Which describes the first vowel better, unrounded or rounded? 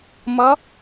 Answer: unrounded